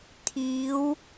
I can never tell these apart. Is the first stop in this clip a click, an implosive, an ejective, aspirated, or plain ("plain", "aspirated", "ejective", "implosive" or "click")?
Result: aspirated